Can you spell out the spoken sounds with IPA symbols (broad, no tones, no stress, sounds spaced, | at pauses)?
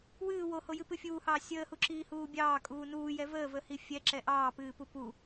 w ɨː w o h o j ɨ p ɨ fʲ uː h ɑː sʲ əː h u ǁ iː h uː bʲ ɑː kʼ uː n uː j ɛ v əː v ə h i fʲ ɛ ǁ ɛ ʔ ɑː p ɨː p u p u